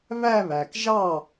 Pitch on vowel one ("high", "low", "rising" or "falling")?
falling